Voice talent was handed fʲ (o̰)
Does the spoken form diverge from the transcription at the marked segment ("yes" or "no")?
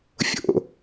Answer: no